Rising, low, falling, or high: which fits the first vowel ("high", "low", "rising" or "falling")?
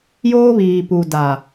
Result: high